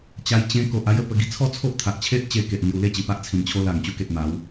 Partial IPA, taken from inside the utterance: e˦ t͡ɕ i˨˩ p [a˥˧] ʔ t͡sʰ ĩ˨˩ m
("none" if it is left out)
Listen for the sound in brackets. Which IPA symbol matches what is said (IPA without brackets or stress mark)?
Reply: a˦